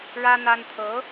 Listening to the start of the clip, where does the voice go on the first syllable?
high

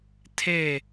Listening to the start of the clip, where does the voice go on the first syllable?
falling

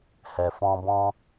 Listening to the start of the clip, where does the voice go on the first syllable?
low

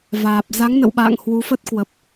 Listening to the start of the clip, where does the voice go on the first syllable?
low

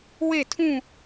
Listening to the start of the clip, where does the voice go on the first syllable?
falling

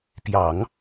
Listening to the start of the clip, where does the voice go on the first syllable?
low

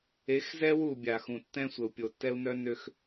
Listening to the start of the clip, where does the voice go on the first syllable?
rising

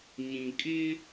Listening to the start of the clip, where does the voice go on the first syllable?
low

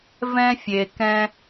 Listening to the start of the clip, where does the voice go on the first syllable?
high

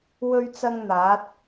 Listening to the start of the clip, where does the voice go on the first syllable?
high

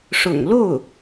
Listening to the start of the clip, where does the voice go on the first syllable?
low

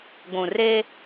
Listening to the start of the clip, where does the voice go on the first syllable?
low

